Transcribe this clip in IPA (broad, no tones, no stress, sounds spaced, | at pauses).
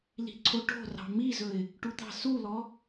l i̤ ǀʰ o ʈ o̤ r ɑ̤ m i z ɵ ɪ̯ | ʈ u t̪ ɑ̤ s u l ɔ